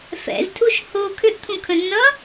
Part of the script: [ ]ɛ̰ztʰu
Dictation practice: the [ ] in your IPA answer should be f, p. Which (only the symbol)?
f